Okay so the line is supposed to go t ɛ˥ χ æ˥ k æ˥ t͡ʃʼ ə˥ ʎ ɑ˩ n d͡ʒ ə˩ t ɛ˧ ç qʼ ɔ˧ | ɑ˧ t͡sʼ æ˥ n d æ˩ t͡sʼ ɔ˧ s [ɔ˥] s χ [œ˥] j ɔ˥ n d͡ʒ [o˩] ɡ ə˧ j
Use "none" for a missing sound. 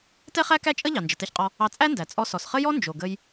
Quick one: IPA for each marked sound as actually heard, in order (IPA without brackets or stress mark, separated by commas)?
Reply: ɔ˩, ə˥, o˩